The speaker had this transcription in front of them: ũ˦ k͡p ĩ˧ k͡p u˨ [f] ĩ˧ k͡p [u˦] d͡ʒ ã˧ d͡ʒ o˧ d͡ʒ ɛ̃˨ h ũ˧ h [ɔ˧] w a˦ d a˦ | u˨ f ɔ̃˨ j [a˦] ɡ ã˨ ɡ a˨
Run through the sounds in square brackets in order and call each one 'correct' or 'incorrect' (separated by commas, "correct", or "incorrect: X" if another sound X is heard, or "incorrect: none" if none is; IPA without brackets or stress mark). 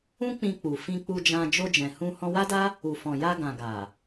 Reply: correct, incorrect: u˧, incorrect: ɔ̃˧, incorrect: a˧